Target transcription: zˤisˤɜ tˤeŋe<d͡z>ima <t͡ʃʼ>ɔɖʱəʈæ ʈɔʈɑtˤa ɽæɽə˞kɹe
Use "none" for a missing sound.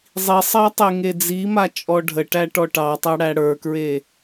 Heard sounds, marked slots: d͡z, t͡ʃʼ

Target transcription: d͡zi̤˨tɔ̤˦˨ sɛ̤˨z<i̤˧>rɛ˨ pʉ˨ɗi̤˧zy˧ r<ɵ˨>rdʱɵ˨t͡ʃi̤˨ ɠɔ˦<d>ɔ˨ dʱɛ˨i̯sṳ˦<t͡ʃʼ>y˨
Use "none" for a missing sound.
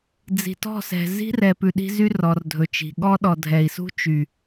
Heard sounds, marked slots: i̤˦, ɔ˨, ɗ, t͡ʃ

